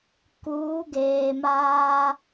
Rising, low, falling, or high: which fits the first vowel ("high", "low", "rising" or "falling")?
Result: rising